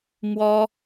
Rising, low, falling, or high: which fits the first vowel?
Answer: high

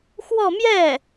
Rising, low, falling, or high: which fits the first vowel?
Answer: falling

